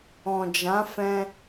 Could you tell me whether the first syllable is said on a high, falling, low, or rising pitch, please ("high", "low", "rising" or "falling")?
low